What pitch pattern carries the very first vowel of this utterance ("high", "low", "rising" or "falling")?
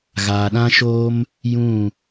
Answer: low